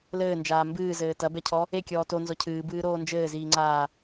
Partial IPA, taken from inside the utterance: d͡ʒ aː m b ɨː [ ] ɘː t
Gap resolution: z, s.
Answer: z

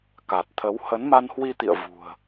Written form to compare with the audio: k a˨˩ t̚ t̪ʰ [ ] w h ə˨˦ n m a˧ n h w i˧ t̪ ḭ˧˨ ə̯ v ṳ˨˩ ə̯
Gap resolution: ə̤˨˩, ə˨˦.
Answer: ə˨˦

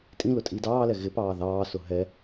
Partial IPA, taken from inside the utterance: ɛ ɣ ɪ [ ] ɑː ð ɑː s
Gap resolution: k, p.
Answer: p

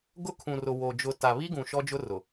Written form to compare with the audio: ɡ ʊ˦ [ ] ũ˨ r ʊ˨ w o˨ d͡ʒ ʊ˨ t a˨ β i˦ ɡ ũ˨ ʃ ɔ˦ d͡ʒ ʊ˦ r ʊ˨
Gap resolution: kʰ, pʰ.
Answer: kʰ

